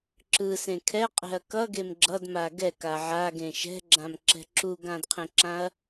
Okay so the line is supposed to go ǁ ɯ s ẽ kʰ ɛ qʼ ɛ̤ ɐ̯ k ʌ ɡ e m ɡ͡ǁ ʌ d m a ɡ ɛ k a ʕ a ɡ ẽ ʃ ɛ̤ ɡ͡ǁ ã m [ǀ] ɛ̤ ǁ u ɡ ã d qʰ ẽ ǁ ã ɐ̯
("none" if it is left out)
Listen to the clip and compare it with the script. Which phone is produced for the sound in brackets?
ǁ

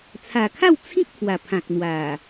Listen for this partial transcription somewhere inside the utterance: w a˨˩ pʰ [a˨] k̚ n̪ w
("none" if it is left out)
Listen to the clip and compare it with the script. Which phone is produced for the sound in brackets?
ã˨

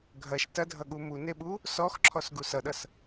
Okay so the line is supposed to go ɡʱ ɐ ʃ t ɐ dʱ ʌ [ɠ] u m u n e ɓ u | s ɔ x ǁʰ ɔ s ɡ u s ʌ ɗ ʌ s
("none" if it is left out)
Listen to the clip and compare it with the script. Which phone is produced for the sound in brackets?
ɠ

